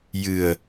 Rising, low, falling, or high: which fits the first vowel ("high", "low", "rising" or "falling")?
low